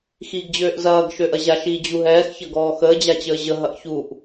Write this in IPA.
x iː ɡ d͡ʑ øː ʔ z ɐː ɡ ʃ ø ʔ ɐ ʑ a ʃ iː d͡ʑ u ɦ ɛː x ç ɐ ɡ ɔː x əː d͡ʑ a t͡ɕ əː ʑ ə ɦ ɐ ʔ ç u ʔ

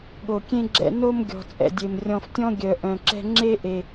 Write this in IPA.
ɠ o˨ kʲ ẽ˦ ɡ͡ǁ ɛ̰˧ n o˦ m ɡʲ ɔ̤˨ t͡sʼ ɛ̰˨ dʲ e˨ m rʲ ɔ̃˧ f tʲ ɔ̃˦ ɡʲ œ˨ ʔ œ̃˨ ǁ ɛ̤˧ ŋ͡ǁ e˦ ʔ e˧

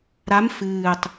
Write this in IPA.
ɾ a m f ɨː tˤ

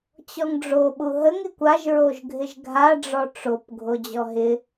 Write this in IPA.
t͡ɕ ɔ ŋ ɖ͡ʐ o ɓ u ɦ ə ŋ ɪ kʷ a ʒ ɹ o ʒ ɡʱ ɪ ʒ ɡʱ a ɖ͡ʐ ɔ ʈ͡ʂ o p ɡʱ o d͡ʑ ɔ ɦ ɪ

